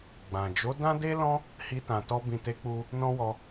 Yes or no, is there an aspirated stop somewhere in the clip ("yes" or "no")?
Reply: no